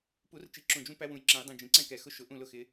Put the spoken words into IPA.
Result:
pu˨˩˦rt͡ʃi˨˩ ǁũ˨˩d͡ʒũ˦ pæ˦wũ˨˩jǁɛ̃˨˩˦j dˤĩ˨˩d͡ʒĩ˨˩ǀɛ̃˥˨kɛ˨˩ xʊ˦ʃʊ˨˩˦ʔũ˥˨ lʊ˦xɪ˨˦

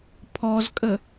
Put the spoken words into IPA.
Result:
pʰɔzkʼə

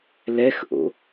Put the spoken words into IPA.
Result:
lɛxʔo̰

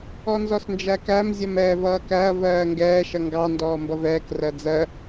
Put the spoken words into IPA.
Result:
ɔnzɔsnd͡ʒækæm zʲʌmɛːvʌːkæɐ̯ vɜːŋɡɛː ʃʌŋɡɑ ndɔːmbʌvɛːk rɜd͡zɜ

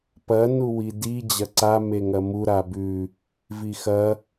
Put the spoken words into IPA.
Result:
pɐ nuwidi d͡ʑɐǀa meŋɐmu ɾabʉ | vixɐ

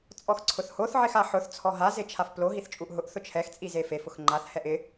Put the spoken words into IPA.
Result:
t͡sʼɔxǀʰʊθhoθ ʕɪxaħʊθ t͡sʰɔɦa zet͡ʃʰafplo ɦiθt͡ʃʼuʔɦʊʔ θʊt͡ʃʰɛx t͡sʼizefef ʊxŋ͡ǃaθ hɛʔɪ

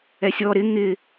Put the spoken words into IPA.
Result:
ɛsʲɔ ɾɪ ŋɪ

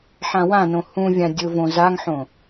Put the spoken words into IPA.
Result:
ħãwãnõ hũvʲã dʲʊvõ zaŋħõ

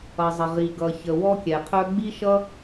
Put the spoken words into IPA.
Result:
ʌ˩zˤə˩ʁi˩ ɡʌ˩çə˩ wɔ˥kʲɛ˩qʰœ˥ ɡ͡bi˥ʃʌ˥

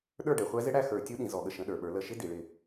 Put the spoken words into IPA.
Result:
ɗə˞˥˨ɖɛ˩˧χʷæ˦˥zɪ˦˥ ɽæ˥˨xə˞˧˩˧ tʲu˦˥ɗĩ˩˧ zɔ˧˩˧ɠə˥˨ʃə̃˧˥˧ɗə˞˧˩˧ ɓə˞˩˧lə˧˩˧ʃɪ˧˥˧ di˩˧ɭɪ˥˨

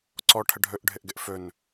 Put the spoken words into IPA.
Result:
ǀɔ ʈʰəɖʱɵʔɖʱɘʔɡɘʔ fɵn

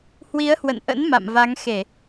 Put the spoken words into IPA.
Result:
hwi˨˦ə̯hwə̰˧˨nʔə̰˧˥n ma̰˧˨mva˨˦ŋxe˧˩˨

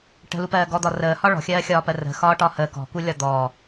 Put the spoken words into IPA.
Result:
ʈə̤lupɜː ɡɔd̪ɒ rəːhɒ ɭɔ̤xʲɜːxʲɒːpɜ rə̤xɒːʈɒ həː kɔ̤kulʲɒ d̪ɔː

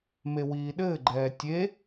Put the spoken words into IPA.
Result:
mewiːɗɘːɡ͡ǃɛː tʲe

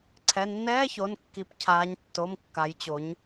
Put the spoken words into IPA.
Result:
ǀʰɛ˩˧˩nːɛː˧˥˧ço˩˧˩nkːi˩˧p cʰaː˩˧ɲtːo˩˧˩mkːa˩˧jt͡ɕo˩˧ɲ

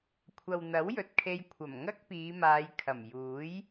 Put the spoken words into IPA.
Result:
kʷʰɐ˨wn̪ɐ˨˥wjɵ˨t̚kʰe˧j kʷʰɐ˨˩mŋɐ˥k̚piː˨˧maː˨˧j kʰɐ˨˩mjuː˨˥j

